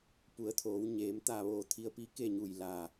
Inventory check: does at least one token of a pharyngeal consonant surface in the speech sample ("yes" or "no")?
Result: no